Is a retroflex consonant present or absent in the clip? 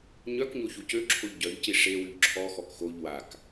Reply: present